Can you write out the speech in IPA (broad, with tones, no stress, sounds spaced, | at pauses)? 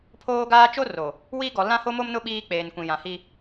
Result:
pʰ oː˦ ɡ aː˦ t͡ʃ o˦ r o˨ | w iː˦ ɡ ɔ˨ l ã˦ h o˦ m o˦ m n ʊ˦ ɓ iː˦ k͡p eː˨ n kʷ ĩ˨ j ã˨ h i˦